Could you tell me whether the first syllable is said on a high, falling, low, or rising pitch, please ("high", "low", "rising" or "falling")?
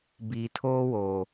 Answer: low